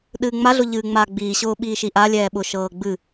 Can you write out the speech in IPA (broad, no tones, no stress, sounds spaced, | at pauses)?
ɗ ɨː ŋ͡m a ɮ ʊ ʎ ɨː ŋ͡m aː ɡ͡b iː ɕ ʊː ɓ iː ʃ i ʔ a lʲ ɛː ɓ ʊ ʃ ɤː ɡ͡b ɨ